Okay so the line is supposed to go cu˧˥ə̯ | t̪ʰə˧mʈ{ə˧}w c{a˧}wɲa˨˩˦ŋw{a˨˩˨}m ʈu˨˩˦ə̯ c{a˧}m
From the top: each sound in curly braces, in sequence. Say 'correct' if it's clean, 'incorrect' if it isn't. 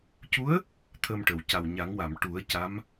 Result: incorrect, incorrect, correct, incorrect

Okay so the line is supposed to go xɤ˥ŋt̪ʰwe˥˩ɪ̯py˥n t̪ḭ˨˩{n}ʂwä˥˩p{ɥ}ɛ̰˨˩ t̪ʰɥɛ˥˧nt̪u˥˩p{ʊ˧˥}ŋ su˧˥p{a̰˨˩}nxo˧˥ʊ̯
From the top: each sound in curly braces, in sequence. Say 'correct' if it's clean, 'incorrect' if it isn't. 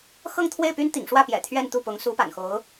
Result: incorrect, incorrect, correct, correct

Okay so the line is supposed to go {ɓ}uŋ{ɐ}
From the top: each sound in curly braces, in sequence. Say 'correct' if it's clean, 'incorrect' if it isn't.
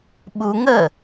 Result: correct, incorrect

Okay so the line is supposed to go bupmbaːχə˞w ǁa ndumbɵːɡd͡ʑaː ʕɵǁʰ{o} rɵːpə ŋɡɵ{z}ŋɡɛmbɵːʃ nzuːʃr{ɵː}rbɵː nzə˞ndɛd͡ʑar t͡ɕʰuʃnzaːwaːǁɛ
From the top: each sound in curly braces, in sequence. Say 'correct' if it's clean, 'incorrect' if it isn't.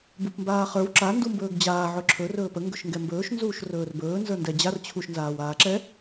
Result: incorrect, incorrect, correct

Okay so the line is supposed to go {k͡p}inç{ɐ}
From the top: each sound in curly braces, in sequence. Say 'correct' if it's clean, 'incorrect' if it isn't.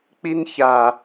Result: correct, incorrect

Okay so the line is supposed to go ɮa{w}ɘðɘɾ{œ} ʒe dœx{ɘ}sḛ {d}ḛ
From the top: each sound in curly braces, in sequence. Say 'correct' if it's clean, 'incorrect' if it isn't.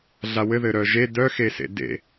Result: correct, correct, incorrect, correct

